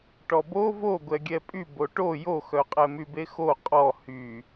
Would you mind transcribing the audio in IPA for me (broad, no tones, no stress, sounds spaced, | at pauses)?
ʈ ɔ b o v o ɡʷ ɛ ɡʲ ɛ pʼ y b o ʈ o j o x œ qʼ ɛ m y b e x o qʼ ɔ h y